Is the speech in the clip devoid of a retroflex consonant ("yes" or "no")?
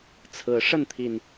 no